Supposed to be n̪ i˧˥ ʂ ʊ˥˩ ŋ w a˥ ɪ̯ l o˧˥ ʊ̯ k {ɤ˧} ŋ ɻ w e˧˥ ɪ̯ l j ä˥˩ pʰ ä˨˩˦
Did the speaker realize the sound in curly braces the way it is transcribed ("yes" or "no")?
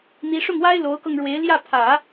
yes